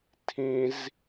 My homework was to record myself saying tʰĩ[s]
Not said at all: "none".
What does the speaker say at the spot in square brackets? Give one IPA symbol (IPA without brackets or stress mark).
z